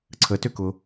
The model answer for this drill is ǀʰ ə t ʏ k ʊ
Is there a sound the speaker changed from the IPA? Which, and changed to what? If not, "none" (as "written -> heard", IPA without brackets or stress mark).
none